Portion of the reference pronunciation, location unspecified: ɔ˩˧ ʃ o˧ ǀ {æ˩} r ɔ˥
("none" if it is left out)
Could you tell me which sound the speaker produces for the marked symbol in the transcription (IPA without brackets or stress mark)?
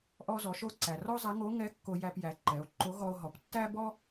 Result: æ˩